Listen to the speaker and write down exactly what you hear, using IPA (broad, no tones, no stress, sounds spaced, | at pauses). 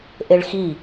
ʔ e ɭ x i